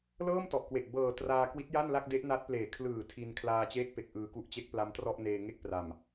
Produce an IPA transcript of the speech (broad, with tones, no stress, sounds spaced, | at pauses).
l ɤː˥˩ m t ɔ˨˩ ʔ k w e˨˩ ʔ b ɤː˨˩ t r aː˧ k w i˦˥ t̚ j a˥˩ n l a˥˩ k̚ d e˦˥ ʔ n a˦˥ t̚ p l eː˨˩ kʰ l ɯː˨˩ tʰ i˧ n kʰ l aː˧ t͡ɕ eː˦˥ k̚ p e˨˩ k̚ ʔ ɯː˨˩ k u˦˥ ʔ t͡ɕ e˦˥ k̚ p l a˦˥ m t r ɔ˥˩ ʔ n eː˧ ŋ e˥˩ k̚ p r a˨˩ m